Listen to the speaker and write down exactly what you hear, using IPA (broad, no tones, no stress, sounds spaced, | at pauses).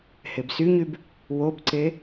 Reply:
h e b s y ɲ y b | w o b ǀ e